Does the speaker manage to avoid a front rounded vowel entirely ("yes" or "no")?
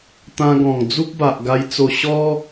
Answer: yes